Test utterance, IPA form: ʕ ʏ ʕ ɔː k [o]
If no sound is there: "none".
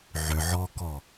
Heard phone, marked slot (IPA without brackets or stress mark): ɔ